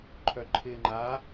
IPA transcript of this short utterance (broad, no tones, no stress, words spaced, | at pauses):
ǃʰœǃʰɪːŋ͡ǃa